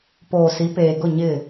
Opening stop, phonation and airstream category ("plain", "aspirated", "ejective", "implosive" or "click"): plain